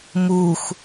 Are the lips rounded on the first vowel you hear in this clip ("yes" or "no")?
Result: yes